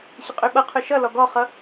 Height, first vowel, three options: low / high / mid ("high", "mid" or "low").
high